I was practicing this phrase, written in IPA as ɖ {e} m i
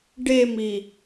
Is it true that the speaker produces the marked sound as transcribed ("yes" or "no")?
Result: yes